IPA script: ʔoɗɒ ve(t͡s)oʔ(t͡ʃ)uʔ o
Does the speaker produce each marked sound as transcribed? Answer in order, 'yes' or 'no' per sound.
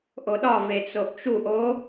yes, yes

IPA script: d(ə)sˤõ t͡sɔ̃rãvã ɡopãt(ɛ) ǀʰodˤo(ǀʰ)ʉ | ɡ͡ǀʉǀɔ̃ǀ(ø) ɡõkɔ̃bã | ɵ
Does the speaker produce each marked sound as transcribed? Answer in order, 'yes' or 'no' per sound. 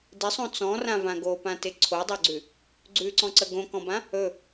no, no, no, no

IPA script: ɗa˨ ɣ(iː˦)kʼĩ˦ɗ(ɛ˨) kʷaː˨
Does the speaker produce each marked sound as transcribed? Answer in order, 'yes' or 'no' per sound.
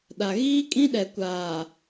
yes, yes

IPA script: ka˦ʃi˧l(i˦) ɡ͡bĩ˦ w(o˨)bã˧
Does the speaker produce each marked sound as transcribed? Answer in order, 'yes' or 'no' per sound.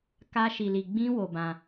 no, no

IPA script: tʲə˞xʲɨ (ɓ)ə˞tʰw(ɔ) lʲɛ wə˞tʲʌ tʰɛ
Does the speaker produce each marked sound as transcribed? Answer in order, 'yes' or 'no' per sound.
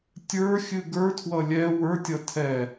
no, no

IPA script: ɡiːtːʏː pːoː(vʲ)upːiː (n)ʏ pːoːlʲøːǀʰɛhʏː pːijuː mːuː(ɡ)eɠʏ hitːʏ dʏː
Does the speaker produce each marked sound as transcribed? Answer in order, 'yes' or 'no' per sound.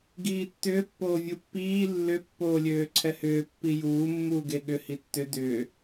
yes, no, yes

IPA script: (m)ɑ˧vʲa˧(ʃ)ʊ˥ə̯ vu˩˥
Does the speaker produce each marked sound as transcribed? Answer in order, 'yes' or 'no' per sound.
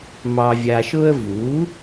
yes, yes

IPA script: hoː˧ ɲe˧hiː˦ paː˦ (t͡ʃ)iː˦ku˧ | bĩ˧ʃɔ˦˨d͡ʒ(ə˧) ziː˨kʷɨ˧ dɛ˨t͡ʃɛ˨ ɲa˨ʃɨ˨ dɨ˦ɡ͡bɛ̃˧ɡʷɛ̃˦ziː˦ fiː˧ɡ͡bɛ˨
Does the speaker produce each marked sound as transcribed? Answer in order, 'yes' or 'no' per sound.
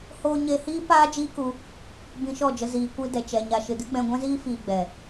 no, yes

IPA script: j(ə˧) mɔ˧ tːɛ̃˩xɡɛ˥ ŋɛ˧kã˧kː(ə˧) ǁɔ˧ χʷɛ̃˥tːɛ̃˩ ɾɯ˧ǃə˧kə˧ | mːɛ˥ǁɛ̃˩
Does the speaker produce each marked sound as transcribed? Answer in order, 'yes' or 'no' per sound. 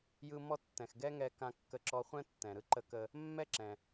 no, yes

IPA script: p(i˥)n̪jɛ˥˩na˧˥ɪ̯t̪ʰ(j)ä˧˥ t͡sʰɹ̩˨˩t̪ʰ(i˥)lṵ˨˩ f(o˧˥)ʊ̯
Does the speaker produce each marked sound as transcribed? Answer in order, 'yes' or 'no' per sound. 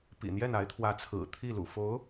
no, no, no, yes

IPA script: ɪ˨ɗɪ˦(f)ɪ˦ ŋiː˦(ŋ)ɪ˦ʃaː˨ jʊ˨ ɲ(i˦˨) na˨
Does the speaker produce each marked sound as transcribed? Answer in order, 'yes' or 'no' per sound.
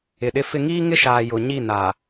yes, yes, yes

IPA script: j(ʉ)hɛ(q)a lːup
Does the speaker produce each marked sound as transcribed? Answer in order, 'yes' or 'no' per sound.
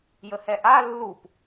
no, no

